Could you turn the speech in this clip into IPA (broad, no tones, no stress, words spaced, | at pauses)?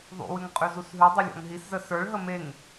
ðˤṵwʉŋ qʼʉzusɦʉdˤi lʲɔ̰ŋɦiszə sə˞ɭɦə meŋ